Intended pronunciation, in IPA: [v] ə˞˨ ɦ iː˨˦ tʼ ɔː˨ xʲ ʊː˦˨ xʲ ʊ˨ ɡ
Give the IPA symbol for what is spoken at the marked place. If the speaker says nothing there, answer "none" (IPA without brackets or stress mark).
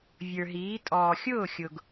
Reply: vʲ